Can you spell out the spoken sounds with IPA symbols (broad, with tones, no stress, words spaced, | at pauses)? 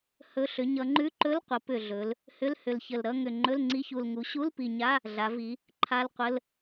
hɵ˧˥˧ ɬʏ˩˧ɲʌ˩˧ŋ͡ǃʉ˧˥˧ ǃɵ˧˥˧lqʷə˩˧ pʏ˨˩ɮɵ˩˧l | hʏ˧˥˧lhʏ˨˩lçə˨˩lɾʌ˧˥˧ ŋʏ˨˩ ŋ͡ǃɵ˧˥˧lŋ͡ǀi˧˥˧çu˨˩l ŋu˩˧ɕu˧˥˧lpi˨˩ ɲa˧˥˧ | ɮa˩˧vi˩˧ | ǃʰa˧˥˧lqʷə˧˥˧l